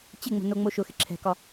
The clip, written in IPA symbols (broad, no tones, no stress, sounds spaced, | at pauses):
t͡ɕ ɪ ŋ͡m o̤ n o ŋ͡m o ʃ ʊ x ɪ ǁʰ ɛ̤ k ɒ